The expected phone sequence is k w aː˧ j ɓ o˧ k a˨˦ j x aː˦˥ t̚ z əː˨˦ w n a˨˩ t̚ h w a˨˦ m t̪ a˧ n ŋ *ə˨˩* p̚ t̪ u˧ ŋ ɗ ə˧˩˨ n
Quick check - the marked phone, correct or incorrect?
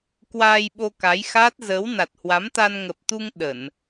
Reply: correct